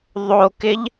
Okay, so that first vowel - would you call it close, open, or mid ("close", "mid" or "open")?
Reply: mid